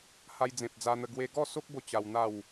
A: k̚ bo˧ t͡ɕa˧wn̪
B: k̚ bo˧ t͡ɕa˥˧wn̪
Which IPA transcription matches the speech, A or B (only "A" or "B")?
A